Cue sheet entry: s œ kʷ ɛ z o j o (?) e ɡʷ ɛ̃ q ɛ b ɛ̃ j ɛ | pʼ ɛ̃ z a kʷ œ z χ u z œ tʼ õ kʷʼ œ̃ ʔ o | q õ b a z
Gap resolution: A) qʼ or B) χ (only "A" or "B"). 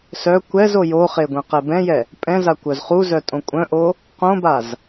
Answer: B